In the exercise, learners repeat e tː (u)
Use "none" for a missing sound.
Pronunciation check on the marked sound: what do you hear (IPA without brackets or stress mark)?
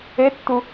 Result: u